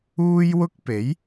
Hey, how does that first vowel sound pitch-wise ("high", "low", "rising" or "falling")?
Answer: high